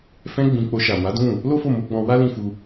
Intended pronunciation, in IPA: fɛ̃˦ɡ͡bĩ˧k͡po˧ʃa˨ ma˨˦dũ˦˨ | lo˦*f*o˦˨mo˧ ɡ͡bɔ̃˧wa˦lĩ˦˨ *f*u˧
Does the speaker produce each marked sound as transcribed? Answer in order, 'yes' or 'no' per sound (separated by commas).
yes, yes